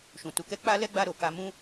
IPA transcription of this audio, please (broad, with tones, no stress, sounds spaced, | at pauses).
ʃ ũ˨ t u˨˦ k ɛ˦ k͡p a˦ l ɛ˦ ɡ͡b a˧ ɾ o˨ k a˧ m ũ˦